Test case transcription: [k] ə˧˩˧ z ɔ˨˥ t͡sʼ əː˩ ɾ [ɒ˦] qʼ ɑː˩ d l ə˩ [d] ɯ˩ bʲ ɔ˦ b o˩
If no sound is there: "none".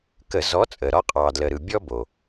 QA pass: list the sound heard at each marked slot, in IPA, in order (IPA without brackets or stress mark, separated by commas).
k, ɒ˦, ɾ